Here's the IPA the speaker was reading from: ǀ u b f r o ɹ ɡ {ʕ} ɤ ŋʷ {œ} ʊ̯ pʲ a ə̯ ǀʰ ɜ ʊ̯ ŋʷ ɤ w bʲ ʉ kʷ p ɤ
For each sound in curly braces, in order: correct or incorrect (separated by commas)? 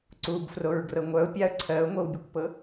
incorrect, correct